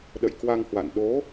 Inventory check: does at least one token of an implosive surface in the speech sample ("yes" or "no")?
yes